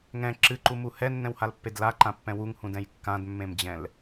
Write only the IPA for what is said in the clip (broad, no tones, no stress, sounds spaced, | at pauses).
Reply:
ŋ ɛ̃ ǁ ɨ ǃ u m u h ɛ nː ɛ̃ w h a l pː e d l a ǃ ã pː ɛ̃ w u ŋ h ũ d ɛ̃ j kː ã d mː ẽ m d͡ʑ ɛ̃ l